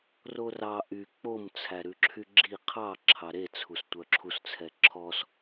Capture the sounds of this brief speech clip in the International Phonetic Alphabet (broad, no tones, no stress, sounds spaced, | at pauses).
r o r ɑ ʔ y k͡p o m t͡sʰ æ ɾ ʉ ǁʰ y ɡ͡ǁ i qʰ ɑ ǁʰ ɑ ɾ e t͡sʰ u s tʷ œ ǁʰ u s t͡sʰ ɛ ǁʰ ɔ s